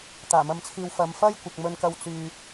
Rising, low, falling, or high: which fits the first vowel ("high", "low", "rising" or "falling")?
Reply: low